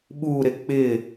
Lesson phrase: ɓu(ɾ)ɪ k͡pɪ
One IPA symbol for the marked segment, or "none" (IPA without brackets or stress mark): ɾ